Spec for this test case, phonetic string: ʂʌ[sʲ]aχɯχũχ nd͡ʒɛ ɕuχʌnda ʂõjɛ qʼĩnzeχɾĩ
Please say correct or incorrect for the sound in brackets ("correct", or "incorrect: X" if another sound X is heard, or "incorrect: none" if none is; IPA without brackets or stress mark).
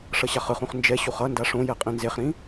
incorrect: ɕ